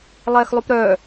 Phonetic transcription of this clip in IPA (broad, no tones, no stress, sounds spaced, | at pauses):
lˠ ɛː x lˠ u p ɾ œː